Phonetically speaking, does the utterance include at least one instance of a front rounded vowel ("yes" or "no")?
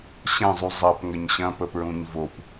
no